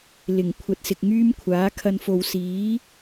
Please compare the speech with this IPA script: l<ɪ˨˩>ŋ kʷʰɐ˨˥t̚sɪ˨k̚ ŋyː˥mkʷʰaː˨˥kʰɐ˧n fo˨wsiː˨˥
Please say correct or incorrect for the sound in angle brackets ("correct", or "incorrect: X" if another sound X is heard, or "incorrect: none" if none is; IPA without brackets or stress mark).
correct